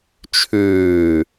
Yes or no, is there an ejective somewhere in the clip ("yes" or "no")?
no